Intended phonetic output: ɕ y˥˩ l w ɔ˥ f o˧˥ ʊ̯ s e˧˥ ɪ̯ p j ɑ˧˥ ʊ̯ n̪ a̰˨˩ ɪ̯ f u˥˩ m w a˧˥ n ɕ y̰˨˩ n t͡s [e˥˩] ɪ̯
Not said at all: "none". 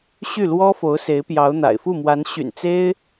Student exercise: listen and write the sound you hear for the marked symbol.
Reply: e˥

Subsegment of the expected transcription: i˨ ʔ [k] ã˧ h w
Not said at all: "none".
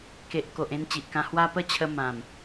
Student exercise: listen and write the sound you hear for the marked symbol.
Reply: k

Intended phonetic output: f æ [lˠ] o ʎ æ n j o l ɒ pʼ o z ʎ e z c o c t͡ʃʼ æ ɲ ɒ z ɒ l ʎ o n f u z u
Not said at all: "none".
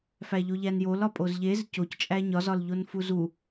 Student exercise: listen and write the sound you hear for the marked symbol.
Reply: ʎ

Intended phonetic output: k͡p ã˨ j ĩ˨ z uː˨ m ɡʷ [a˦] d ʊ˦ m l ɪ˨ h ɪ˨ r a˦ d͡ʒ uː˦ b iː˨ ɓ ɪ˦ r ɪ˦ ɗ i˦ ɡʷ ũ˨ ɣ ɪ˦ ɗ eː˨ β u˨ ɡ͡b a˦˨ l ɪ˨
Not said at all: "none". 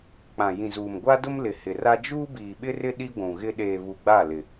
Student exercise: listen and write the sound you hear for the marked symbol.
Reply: a˦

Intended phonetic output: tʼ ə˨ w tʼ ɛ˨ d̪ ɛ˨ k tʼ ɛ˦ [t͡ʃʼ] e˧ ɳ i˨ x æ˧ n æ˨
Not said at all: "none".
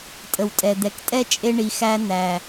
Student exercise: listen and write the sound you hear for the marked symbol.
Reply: t͡ʃʼ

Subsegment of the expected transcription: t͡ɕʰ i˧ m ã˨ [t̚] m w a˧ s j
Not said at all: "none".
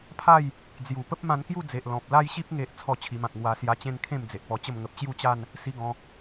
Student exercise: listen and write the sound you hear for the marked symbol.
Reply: k̚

